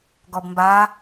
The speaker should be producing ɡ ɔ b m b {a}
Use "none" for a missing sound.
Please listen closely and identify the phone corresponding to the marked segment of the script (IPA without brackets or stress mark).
a